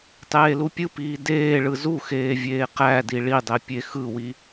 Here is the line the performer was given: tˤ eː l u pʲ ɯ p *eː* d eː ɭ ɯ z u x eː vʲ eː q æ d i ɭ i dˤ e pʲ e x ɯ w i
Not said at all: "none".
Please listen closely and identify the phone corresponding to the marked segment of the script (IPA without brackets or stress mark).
iː